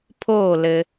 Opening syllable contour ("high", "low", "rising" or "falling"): falling